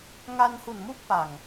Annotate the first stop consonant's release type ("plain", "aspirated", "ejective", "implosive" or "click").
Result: plain